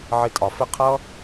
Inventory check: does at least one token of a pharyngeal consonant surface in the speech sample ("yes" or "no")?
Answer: yes